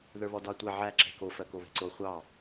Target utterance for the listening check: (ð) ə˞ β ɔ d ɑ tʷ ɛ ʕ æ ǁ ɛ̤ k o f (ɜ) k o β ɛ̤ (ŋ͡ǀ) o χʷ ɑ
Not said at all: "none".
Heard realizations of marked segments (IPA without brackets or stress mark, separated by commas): ð, ɜ, ǀ